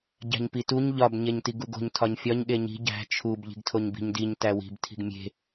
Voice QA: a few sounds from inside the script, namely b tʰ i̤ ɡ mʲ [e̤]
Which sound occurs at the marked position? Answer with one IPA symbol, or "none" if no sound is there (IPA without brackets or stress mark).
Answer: e̤